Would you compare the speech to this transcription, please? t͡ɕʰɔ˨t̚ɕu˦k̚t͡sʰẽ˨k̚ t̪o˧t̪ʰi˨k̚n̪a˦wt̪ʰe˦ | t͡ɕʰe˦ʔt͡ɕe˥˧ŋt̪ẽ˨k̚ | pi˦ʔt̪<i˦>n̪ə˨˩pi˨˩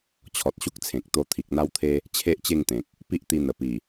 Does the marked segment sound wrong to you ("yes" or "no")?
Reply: yes